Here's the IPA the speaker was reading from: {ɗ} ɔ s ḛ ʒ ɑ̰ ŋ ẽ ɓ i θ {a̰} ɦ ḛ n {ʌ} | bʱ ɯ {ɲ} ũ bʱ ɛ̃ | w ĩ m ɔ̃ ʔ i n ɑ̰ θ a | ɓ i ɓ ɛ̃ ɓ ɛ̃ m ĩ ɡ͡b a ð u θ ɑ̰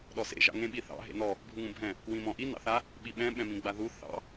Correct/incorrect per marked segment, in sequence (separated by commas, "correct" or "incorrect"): correct, incorrect, incorrect, incorrect